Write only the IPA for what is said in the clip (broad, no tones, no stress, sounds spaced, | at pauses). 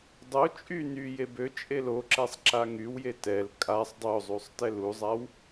dˤ o t͡ʃʼ y n y j e b ø t͡ʃʼ e l o ǁ ɛ sˤ ǁ a ŋ y w j e t ɛ l kʼ a sˤ dˤ o zˤ u sˤ t ɛ l u zˤ a w